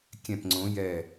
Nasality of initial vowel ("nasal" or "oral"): nasal